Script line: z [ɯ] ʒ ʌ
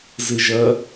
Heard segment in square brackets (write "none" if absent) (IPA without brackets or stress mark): ɯ